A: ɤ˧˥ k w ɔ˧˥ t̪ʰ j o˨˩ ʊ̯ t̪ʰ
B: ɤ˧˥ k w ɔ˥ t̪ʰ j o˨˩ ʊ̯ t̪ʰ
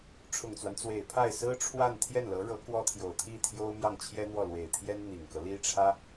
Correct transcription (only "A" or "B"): B